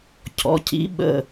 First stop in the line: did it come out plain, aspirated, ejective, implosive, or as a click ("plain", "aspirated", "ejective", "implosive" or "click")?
aspirated